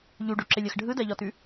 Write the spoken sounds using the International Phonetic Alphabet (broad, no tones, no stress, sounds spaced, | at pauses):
ʎ u ɖ o ǁ ɪ lʲ ɜ x ɖʱ ɯ d ɜ ʎ ɔ t ʉ